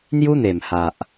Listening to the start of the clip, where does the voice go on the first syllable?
high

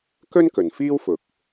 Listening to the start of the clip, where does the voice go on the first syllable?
high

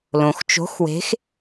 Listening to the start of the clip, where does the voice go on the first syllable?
low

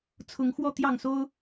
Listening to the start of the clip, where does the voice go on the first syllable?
rising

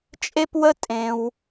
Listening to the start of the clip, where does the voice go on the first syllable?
high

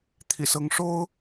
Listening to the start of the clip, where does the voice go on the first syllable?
low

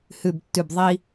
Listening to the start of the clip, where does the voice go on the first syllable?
low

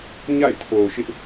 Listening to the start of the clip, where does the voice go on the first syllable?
falling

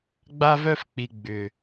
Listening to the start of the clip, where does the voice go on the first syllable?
high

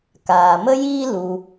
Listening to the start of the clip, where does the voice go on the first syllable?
low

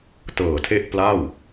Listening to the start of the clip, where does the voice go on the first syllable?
low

